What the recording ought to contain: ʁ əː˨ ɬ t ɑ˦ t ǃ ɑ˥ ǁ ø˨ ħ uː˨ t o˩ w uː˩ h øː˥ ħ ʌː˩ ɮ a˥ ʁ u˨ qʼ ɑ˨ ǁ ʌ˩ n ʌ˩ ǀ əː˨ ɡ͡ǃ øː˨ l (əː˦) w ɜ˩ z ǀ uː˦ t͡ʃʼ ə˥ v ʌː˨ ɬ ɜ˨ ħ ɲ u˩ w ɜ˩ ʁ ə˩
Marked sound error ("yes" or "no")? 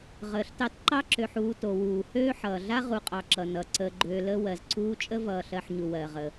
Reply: no